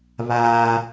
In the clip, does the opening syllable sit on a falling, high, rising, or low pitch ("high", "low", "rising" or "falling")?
high